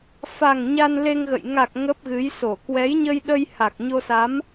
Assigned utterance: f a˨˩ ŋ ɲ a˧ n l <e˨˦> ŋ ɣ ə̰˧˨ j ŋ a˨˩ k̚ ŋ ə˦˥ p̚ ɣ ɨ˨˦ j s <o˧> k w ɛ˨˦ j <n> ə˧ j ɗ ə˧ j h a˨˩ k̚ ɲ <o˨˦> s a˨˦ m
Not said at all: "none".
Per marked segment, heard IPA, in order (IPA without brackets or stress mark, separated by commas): e˧, o˧˩, ɲ, o˧